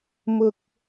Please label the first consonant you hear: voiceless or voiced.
voiced